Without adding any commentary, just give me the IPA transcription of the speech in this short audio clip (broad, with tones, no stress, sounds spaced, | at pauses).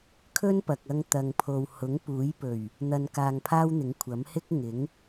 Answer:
kʰ ɵ˥ n p ɐ˨ k̚ ɐ˧ ŋ t̪ ɐ˨ ŋ pʰ o˨ w h ʊ˨˥ ŋ p uː˨˥ j p ɵ˨˩ ɥ | n̪ ɐ˧ n k aː˧ ŋ pʰ aː˥ w n̪ ɪ˨˥ ŋ kʷʰ ɐ˨˥ m h ɪ˥ k̚ ŋ ɪ˨˥ ŋ